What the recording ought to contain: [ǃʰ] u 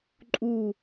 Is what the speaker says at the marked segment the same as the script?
no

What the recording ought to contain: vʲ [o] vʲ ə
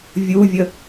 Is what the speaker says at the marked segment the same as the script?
no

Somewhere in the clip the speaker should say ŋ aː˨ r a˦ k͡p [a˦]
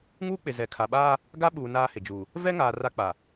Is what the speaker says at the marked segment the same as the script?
no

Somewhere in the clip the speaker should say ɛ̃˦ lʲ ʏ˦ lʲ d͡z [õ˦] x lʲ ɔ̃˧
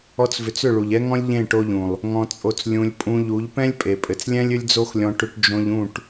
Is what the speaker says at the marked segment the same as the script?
no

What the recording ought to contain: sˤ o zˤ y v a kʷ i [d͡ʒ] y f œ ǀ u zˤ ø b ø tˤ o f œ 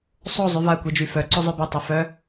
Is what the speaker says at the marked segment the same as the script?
yes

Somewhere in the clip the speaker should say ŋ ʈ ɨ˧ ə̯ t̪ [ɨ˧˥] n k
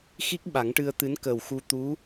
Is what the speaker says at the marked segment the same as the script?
yes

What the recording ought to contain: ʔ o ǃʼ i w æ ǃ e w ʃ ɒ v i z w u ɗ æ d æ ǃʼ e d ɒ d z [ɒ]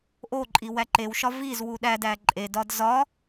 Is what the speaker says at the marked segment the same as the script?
yes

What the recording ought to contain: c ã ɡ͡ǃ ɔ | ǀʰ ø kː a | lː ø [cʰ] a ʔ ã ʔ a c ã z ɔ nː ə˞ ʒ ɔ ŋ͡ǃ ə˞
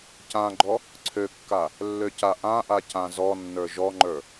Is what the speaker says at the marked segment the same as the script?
no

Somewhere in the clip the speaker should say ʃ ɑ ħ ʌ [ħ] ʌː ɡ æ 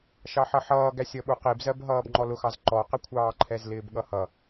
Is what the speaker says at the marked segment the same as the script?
yes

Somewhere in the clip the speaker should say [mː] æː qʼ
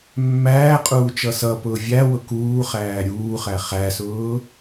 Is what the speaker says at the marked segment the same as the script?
yes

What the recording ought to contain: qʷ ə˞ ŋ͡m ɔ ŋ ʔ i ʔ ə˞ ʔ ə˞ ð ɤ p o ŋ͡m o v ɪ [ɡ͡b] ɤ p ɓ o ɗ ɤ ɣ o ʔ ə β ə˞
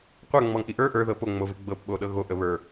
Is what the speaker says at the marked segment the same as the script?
yes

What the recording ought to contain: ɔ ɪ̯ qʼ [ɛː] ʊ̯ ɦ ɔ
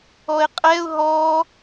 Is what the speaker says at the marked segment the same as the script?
no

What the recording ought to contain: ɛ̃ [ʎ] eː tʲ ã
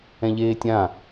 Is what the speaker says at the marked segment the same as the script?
yes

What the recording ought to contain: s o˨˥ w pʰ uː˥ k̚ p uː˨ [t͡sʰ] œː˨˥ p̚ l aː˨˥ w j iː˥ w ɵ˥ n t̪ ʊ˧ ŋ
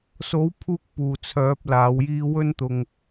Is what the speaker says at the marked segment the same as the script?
yes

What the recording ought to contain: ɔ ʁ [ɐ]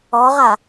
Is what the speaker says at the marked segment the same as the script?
no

